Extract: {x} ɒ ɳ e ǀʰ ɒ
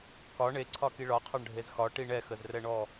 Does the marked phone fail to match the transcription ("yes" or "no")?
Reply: yes